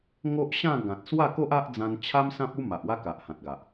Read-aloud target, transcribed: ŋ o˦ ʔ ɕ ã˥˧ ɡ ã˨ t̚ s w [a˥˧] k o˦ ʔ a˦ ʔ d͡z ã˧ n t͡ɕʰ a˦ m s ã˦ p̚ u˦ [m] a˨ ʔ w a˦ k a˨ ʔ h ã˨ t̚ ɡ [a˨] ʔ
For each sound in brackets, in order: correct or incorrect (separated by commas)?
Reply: correct, correct, correct